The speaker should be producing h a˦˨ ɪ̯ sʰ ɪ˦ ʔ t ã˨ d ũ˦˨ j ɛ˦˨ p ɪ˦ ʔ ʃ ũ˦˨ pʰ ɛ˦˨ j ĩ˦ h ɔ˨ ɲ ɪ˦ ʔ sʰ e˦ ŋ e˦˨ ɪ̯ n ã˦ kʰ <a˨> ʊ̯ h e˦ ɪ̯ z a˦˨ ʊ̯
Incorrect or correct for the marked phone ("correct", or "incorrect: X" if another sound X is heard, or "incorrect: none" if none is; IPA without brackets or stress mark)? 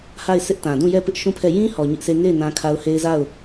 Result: incorrect: a˦